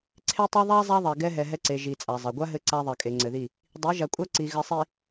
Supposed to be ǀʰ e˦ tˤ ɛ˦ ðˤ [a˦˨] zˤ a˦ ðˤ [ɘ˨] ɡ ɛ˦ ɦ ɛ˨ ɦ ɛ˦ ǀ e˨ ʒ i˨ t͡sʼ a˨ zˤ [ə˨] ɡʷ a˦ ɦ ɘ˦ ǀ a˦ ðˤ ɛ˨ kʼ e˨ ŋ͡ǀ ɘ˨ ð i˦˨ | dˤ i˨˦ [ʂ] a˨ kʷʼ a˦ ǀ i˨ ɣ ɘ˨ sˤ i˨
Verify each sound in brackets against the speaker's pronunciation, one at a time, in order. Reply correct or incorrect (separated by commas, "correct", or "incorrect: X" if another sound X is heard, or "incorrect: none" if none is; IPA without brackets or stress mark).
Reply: incorrect: a˦, incorrect: ɛ˨, incorrect: ɛ˨, incorrect: ʒ